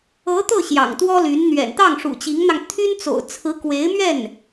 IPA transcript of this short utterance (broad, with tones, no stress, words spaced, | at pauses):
ɤ˧˥ t̪ɤ˥˩ ɕjɑ̰˨˩ŋt̪wɔ˥ly˧˥n n̪ɥɛ̰˨˩nt̪ɑ˥˩ŋ ʂṵ˨˩t͡ɕi˧˥ŋn̪ɑ˧ŋ t̪ʰy˥n t͡so̰˨˩ʊ̯t͡sʰɹ̩˧˥kwe˧˥ɪ̯mɥɛ˥˩n